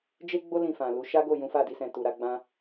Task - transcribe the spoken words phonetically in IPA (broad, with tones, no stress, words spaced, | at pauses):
d͡ʒe˦ɡ͡bo˦ lĩ˦˨fã˨lu˨˦ ʃa˦ɡo˦˨ jũ˨˦fa˦˨di˧sɛ̃˨ tu˨ɾa˧ɡ͡bã˦